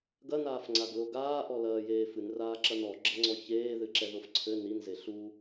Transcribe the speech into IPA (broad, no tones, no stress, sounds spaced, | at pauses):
ɡ ɐ n aː f ŋ͡ǀ a ɡ l o ɡ aː ʔ ɔ l ɐː j eː f ɨ n r aː ǁ ɐ n ɔ ɡ͡ǁ ɐ ŋ͡ǀ ɔ ç eː ð ɨ ǁ ɛ ð o f ǀʰ ɘ n i n z e ɬ u